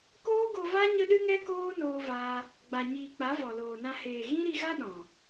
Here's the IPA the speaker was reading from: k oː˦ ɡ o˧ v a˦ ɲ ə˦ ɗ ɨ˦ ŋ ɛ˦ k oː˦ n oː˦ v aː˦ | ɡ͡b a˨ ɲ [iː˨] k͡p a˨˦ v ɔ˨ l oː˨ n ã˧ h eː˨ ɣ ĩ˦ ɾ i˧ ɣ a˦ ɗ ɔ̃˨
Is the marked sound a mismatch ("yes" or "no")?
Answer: no